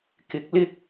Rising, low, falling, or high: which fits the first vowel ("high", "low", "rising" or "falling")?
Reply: rising